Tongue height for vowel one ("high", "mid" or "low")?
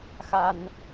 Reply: low